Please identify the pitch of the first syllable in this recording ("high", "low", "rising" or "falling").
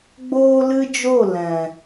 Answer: high